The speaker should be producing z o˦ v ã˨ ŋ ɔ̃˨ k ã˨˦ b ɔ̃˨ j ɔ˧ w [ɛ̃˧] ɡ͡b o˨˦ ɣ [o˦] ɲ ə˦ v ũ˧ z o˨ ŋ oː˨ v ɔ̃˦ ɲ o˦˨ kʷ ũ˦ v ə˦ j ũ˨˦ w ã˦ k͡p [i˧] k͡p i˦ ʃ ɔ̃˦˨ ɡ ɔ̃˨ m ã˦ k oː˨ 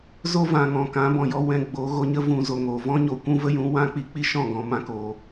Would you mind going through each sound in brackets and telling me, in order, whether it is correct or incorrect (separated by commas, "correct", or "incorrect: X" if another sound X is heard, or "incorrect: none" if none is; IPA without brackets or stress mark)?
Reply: correct, incorrect: o˧, correct